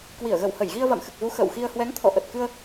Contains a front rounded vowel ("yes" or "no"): no